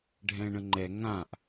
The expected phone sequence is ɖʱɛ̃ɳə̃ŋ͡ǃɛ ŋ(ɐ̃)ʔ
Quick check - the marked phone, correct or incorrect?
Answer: incorrect